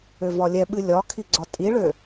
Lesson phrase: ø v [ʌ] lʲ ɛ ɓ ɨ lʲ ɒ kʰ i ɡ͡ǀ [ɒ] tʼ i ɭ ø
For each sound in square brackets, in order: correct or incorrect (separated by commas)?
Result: incorrect, correct